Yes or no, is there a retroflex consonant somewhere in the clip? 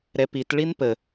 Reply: yes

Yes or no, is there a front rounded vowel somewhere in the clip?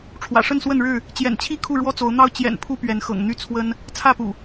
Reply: yes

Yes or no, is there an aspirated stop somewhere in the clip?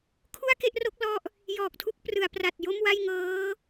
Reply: yes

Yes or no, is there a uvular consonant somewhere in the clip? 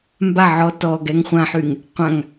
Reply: yes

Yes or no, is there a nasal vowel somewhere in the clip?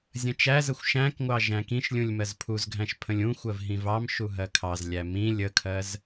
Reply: yes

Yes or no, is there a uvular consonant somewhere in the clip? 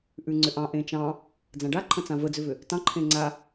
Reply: no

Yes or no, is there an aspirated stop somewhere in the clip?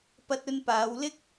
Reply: no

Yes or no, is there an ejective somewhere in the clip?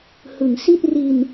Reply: no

